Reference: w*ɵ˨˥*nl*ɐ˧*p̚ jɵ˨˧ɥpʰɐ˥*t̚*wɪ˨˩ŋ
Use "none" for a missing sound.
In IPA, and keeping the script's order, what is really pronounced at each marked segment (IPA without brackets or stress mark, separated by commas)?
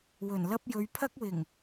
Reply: ɵ˨˩, ɐ˥, k̚